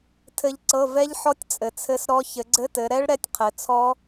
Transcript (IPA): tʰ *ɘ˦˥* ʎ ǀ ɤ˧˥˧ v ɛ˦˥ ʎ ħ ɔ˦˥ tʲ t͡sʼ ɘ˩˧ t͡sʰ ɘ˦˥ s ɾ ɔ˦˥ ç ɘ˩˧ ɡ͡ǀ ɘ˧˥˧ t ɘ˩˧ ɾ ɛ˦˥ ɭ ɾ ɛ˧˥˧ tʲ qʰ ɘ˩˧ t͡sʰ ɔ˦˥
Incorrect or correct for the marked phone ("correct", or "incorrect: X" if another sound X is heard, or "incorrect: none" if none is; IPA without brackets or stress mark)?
correct